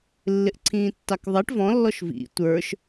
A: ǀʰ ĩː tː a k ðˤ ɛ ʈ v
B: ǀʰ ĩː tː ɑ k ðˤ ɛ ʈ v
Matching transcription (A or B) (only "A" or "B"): B